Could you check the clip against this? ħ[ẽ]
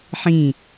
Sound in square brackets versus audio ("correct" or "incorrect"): incorrect